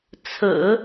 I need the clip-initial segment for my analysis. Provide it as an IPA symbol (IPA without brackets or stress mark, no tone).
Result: t͡sʰ